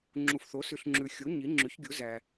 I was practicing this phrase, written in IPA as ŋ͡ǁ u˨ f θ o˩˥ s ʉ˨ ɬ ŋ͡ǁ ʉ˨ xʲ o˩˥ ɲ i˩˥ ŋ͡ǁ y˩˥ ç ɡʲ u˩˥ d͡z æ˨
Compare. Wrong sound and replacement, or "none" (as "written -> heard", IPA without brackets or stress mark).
d͡z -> z